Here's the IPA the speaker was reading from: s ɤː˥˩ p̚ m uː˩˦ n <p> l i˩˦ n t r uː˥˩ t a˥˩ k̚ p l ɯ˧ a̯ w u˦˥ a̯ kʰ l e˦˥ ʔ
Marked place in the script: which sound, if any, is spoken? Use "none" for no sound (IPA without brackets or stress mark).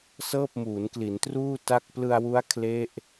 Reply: k